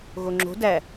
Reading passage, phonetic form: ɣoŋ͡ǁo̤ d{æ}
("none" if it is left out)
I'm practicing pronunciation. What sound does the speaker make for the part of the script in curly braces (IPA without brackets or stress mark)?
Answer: æ